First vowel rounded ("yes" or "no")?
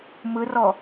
no